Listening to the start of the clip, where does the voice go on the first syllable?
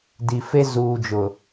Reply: low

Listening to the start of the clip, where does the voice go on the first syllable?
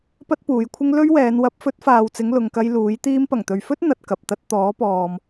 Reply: high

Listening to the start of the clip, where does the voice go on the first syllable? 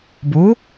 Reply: rising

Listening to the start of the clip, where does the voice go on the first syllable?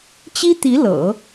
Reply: high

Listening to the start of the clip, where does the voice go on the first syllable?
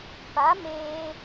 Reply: rising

